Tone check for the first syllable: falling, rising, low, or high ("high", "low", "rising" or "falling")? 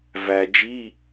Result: low